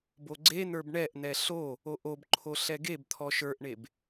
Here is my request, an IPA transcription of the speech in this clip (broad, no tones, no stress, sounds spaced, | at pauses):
b o ɡ͡ǀ e n̪ ə˞ b ɳ ɛ ʔ n̪ ɛ ɬ o | o ʔ o b ǃʰ o ɬ ɛ ɡ e b t̪ʰ ɔ ʃ ə˞ ʔ ɳ e b